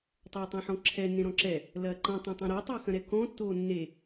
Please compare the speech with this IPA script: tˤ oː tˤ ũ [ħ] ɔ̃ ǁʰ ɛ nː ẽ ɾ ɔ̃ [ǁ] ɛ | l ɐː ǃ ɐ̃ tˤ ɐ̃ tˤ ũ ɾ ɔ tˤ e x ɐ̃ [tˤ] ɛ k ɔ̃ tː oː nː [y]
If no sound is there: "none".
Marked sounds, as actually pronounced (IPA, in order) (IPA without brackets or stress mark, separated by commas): ħ, ǁ, ɾ, e